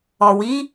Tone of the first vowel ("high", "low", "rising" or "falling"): low